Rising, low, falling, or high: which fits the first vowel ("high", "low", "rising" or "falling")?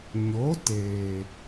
rising